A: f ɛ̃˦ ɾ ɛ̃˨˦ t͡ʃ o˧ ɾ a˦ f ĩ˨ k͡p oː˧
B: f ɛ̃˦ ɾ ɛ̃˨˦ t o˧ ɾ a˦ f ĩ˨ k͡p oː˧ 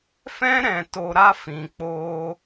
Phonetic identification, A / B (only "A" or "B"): B